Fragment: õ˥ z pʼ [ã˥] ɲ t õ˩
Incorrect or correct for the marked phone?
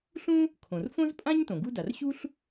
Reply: correct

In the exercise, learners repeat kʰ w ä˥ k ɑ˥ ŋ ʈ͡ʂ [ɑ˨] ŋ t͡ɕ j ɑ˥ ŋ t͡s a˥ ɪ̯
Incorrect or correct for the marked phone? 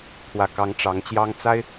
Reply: incorrect: ɑ˧˥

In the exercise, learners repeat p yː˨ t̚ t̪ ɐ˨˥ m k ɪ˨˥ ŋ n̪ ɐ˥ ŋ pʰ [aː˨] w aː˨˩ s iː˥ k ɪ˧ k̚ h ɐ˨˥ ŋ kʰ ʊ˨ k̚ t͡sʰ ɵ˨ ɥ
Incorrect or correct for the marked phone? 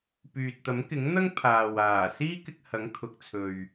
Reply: correct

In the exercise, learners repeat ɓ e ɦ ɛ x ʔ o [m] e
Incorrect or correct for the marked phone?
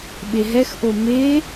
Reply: correct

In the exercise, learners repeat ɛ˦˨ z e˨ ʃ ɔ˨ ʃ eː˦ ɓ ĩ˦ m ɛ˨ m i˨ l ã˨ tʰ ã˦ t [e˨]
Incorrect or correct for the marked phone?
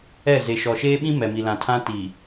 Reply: incorrect: i˨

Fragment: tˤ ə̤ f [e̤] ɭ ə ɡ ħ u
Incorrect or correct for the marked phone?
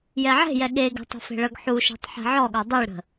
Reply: correct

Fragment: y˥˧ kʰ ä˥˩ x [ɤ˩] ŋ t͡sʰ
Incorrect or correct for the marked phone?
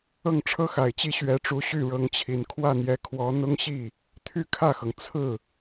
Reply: correct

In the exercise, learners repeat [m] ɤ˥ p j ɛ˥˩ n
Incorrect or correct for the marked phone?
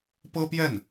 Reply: incorrect: p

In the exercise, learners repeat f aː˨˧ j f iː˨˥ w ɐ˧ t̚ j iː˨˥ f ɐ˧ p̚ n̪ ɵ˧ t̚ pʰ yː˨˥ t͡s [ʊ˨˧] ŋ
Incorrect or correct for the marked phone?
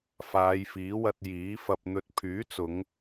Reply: correct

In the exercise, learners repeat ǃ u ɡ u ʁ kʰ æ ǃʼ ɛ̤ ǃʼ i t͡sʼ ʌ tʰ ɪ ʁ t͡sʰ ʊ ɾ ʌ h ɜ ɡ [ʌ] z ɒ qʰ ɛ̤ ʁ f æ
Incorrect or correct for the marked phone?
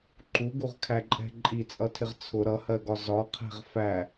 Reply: incorrect: ɒ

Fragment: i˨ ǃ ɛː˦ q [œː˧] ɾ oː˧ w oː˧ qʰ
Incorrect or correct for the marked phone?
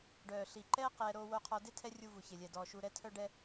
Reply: incorrect: ɛː˧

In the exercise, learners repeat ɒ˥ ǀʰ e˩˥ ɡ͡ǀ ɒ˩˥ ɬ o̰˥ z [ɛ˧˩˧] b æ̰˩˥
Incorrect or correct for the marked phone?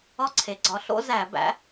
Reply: incorrect: æ˧˩˧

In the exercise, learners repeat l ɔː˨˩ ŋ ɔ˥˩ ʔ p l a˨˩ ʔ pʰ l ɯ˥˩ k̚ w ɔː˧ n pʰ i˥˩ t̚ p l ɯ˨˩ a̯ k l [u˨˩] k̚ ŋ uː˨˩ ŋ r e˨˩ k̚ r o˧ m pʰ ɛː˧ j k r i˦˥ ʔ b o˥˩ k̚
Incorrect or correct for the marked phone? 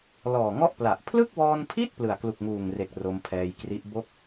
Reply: correct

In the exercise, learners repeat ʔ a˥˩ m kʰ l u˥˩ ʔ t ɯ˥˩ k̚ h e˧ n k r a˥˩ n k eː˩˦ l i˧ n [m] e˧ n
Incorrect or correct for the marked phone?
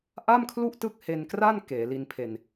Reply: incorrect: pʰ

